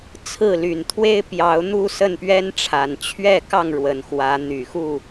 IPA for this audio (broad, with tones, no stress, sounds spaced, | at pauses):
t͡sʰ ɹ̩˥˨ l y˨˩ n t̪ʰ w e˦ ɪ̯ p j ɑ˨˦ ʊ̯ n̪ u˥˨ s ə˥˨ n p ɥ ɛ˦ n ʈ͡ʂʰ a˨˩ n t͡ɕʰ ɥ ɛ˥˨ k ɑ˥˨ ŋ ɻ w ə˨˩ n x w ä˨˦ n̪ y˨˩ x u˥˨